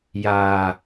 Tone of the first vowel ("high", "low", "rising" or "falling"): low